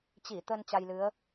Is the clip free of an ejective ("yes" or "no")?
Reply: yes